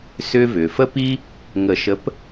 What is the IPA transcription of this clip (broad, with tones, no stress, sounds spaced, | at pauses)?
s ʏː˦ v ʏː˩ f ə˦ p i˦ | ŋ ə˨˩˦ ʃ ə˨˥ p